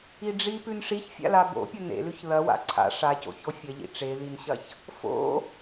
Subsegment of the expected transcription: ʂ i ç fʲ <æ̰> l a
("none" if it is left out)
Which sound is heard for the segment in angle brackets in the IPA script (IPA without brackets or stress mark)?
a̰